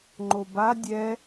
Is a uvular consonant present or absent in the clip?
absent